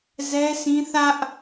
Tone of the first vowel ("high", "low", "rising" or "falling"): high